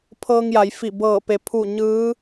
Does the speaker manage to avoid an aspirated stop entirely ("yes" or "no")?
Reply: no